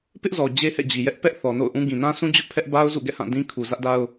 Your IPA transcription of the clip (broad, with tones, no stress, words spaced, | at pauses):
pɪ˦ʔzɔ˨ d͡ʑe˦hɛ̰˦˨d͡ʑi˨jɛ˦ʔ pɛ˦ʔ θɔ˨no̰˦˨ʊ̯ʔũ˦ ɡĩ˨nã˦sũ˦ d͡ʑʊ˦ʔpʰɛ˦ʔba˦ʊ̯ zṵ˦˨ɡɛ̰˦˨hã˦˨ dĩ˦kʰu˨ zä˦ʔda˦ʊ̯